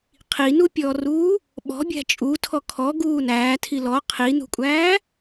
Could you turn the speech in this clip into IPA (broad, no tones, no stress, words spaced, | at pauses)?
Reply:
qʰinupʲɔːruː | ɓɔ̤bʲæ̤ t͡ʃʼutʰɔ kʰɔ ɡuːnæːtʰi lɔ qʰin̪ṳkʷʼæː